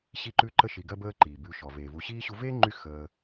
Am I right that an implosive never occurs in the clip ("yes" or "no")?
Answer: yes